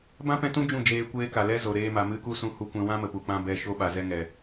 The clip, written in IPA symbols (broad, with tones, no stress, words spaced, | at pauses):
bã˦pɛ̃˧tũ˦ d͡ʒũ˦˨d͡ʒeː˧ kʷeː˦ka˨ lɛ˦zo˨ ɾeː˧ma˨ mɨ˦ku˦ sũ˦hu˦kʷɛ̃˦ wã˦mə˨ pu˨k͡pã˧ bɛ˧ ʃo˧ɓa˨zɛ˧ŋɛ˨